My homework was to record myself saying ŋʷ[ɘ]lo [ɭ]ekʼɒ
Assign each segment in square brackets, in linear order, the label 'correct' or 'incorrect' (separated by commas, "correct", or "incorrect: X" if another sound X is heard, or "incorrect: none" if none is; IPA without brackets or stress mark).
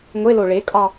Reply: incorrect: e, correct